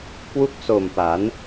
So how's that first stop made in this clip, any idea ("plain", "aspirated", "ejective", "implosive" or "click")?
plain